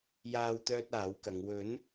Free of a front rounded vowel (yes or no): no